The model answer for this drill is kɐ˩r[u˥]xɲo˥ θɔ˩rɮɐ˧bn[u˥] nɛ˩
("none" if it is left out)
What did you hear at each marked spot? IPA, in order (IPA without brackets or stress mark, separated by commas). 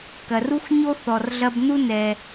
u˥, u˥